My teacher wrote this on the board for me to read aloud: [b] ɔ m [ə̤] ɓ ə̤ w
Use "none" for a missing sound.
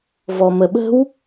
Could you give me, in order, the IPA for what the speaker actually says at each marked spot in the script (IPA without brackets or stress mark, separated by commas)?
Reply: v, ə